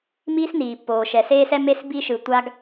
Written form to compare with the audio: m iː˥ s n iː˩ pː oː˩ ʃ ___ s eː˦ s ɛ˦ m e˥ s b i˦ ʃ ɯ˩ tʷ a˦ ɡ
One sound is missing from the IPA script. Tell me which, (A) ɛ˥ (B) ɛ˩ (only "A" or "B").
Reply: B